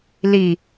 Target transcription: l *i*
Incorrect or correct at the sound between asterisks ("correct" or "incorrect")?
correct